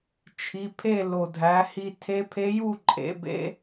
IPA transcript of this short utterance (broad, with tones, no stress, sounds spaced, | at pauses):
t͡ʃʰ i˩˧˩ pʰ e˥˨ l o˩ dʱ æ˩˧ h i˧ tʰ e˧˥ pʰ e˧˥ j u˥˨ ǃʼ ḛ˩˧ b ḛ˧˥